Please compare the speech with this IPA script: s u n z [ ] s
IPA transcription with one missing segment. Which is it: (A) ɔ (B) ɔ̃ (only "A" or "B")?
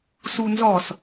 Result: A